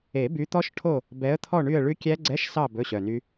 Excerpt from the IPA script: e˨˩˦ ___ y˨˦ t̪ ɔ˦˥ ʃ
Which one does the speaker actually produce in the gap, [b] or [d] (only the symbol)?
b